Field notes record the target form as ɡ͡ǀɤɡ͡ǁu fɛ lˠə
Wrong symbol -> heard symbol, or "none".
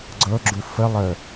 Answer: ɛ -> ə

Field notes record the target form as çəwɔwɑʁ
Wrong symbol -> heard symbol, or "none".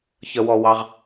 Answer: none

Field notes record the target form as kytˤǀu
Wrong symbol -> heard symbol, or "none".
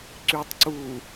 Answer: k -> ǀ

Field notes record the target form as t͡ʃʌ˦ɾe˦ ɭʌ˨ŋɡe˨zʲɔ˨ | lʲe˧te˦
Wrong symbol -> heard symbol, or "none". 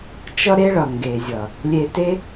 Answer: ɔ˨ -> ʌ˨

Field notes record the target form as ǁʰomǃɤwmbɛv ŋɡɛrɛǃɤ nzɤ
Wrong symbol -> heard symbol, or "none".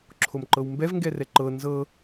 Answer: none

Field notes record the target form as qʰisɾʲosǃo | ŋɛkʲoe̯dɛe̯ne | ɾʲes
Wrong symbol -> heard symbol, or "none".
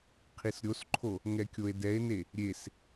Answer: ǃ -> ǃʰ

